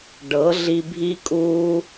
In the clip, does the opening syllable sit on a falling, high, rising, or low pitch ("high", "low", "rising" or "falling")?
rising